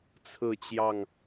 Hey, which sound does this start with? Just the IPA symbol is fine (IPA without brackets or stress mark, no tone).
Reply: t͡sʰ